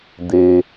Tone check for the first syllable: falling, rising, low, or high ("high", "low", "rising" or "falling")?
low